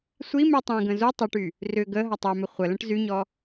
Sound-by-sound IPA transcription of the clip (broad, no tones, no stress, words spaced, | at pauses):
sʷi mytˤẽɡə̃ zu tˤʊʈy | rʏ ɡə ɦɐtˤœmʏ χʷələ̃ʈ zyɲɔ